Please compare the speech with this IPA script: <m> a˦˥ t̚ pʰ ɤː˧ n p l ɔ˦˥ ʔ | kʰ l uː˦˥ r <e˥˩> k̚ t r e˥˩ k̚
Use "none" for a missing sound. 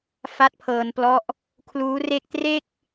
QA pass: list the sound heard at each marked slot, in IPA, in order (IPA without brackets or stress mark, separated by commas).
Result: f, e˥˩